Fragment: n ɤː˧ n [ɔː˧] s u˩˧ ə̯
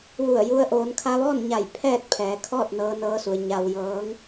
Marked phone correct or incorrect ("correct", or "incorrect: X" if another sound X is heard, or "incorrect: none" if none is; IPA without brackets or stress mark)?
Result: incorrect: ɤː˧